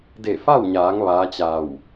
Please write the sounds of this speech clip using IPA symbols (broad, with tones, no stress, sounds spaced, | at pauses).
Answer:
d e˧˩ f a˥˨ w ɲ aː˩˧ ŋ ʋ aː˧˥ t͡ɕ a˧˩ w